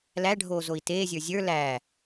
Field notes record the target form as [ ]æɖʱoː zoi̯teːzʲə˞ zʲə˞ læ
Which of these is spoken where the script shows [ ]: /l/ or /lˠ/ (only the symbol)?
l